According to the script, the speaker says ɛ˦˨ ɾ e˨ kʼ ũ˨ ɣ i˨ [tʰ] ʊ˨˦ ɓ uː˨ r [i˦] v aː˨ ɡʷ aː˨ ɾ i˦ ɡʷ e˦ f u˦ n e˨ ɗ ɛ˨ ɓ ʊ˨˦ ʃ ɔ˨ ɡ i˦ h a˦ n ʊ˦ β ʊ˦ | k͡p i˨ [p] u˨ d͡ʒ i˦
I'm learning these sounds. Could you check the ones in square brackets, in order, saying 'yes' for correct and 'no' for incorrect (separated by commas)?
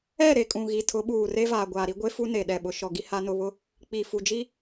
yes, no, no